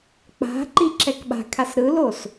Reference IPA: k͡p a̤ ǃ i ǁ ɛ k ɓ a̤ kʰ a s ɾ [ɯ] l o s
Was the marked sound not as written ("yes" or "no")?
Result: no